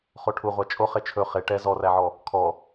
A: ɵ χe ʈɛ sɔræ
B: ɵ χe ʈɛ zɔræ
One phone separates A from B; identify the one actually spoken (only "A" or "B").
B